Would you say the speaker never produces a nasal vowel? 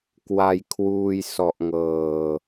yes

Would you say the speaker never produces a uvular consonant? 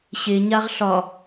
no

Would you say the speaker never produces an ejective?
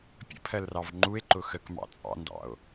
no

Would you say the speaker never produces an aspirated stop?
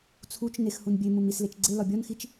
no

